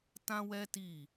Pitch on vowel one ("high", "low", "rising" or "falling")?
high